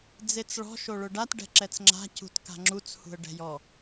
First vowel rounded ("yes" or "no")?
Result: no